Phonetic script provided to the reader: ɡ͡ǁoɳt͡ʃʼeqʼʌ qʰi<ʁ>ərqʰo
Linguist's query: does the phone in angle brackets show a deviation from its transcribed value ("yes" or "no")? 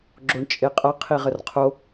no